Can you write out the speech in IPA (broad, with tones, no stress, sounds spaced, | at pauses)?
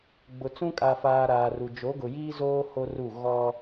ɡ͡b ʊ˨ t͡s ũ˦ kʼ a˨ f aː˨ ɾ aː˨ r u˨ d͡ʒ o˨˦ ɡ ʊ˨ j iː˦ z oː˦ h o˦ r u˦˨ ɣ ɔ˦